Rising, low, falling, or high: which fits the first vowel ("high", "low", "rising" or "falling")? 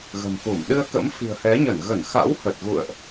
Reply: low